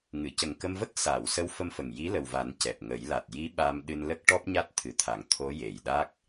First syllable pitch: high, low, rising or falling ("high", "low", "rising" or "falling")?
low